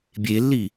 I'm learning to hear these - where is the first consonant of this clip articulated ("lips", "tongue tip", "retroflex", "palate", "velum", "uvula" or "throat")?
lips